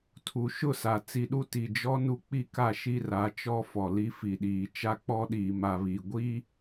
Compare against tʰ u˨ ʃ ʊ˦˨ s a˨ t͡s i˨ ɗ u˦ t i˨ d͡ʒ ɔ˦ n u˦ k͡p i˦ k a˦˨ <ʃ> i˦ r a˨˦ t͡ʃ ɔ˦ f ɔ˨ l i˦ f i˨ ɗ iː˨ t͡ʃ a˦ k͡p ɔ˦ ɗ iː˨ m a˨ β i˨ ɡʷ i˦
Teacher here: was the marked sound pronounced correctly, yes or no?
yes